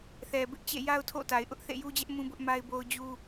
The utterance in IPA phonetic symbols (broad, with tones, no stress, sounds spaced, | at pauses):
θ ɛ˨ b ɪ˦ ʔ t͡ɕ ḛ˦˨ j a˦ ʊ̯ tʰ o̰˦˨ t a˨ ɪ̯ ʔ ʊ˦ ʔ θ ḛ˦˨ j u˦ d͡ʑ ɛ˦ ʔ m ũ˦ b ʊ˦ ʔ m a˦ ɪ̯ b o˦ ʊ̯ d͡ʑ u˦